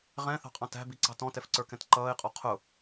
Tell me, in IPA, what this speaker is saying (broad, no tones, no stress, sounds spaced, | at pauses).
ʁ ɛ̃ θ ɑ̤ qʼ ɑ̃ t æ̤ b i ǀ ɑ̤ t ɔ̃ t ɛ f ǀ ə˞ k ɛ̃ t ǃ ʌː ɪ̯ qʼ ɔ qʰ ʊ